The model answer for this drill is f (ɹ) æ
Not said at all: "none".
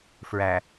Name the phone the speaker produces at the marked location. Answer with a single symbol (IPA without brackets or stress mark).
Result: ɹ